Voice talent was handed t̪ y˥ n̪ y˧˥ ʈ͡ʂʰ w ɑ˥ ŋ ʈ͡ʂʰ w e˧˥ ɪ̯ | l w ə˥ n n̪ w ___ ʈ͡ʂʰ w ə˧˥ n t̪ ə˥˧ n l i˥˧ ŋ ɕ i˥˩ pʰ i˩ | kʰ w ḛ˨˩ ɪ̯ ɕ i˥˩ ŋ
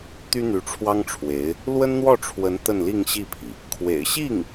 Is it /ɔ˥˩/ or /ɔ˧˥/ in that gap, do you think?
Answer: ɔ˥˩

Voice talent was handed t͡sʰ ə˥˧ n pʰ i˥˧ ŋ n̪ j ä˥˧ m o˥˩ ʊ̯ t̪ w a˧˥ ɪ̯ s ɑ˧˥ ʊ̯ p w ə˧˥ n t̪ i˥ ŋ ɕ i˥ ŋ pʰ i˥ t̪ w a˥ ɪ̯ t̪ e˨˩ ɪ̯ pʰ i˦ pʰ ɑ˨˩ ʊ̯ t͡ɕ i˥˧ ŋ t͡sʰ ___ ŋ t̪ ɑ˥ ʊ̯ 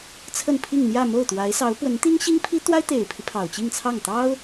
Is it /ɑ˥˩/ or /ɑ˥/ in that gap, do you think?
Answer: ɑ˥˩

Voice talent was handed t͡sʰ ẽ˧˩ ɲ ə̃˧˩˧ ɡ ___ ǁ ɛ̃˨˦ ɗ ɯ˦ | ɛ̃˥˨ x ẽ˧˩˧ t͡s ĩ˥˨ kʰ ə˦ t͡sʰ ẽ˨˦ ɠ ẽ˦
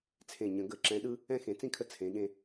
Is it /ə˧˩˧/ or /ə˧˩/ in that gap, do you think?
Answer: ə˧˩˧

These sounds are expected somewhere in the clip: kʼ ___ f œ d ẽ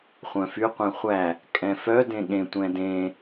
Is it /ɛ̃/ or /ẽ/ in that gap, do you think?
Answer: ɛ̃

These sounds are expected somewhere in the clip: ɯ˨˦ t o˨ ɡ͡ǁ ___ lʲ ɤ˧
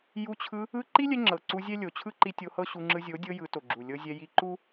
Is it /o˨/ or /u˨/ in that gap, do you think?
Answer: u˨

